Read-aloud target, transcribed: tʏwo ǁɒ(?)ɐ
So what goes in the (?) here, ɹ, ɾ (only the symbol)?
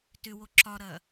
ɾ